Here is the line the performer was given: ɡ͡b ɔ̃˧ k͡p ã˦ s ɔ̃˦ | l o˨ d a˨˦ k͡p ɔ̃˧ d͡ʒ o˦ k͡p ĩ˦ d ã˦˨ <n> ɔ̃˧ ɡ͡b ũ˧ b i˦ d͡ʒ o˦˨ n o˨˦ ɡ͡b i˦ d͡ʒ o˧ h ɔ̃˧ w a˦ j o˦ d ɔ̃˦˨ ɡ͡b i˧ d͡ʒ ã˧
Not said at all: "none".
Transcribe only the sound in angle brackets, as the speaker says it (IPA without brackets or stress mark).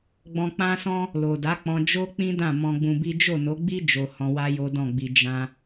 m